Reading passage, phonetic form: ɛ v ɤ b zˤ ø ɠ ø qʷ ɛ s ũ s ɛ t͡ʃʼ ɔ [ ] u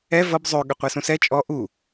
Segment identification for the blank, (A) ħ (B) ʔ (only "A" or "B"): B